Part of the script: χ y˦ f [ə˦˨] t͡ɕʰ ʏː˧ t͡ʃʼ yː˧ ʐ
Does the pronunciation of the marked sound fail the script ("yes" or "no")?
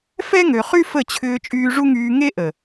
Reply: no